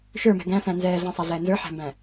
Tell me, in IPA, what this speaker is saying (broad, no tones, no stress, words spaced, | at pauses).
ʃə˞mɛ̤ ɡæ̃sæ̃ nzɛːɮæ̃sˤaɮɛː nzə˞ħæ̤mbæ̃